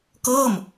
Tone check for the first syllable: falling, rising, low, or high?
falling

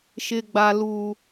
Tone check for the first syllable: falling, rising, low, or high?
low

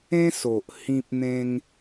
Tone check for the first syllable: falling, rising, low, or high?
high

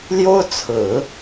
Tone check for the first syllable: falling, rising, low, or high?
high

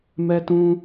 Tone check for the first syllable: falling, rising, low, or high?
high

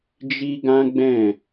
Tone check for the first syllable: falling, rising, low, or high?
high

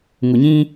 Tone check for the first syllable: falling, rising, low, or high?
low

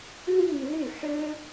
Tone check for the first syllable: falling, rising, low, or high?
falling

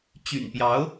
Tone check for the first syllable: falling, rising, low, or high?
low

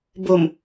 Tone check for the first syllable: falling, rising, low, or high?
low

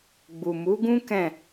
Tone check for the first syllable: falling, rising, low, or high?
low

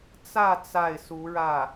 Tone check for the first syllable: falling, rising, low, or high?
falling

